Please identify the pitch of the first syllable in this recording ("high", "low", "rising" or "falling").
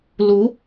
rising